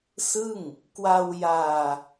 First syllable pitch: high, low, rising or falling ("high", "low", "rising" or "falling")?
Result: falling